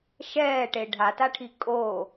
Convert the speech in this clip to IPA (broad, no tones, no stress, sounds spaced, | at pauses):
ʃ ɛː ʈ e ɖʱ a t a ʈʰ i kʼ o